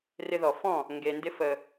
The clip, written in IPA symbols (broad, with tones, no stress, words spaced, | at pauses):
rɪ˧ðɔ˨ fɔ̃˦˨ | ŋɡe˨ndɪ˧ fə˨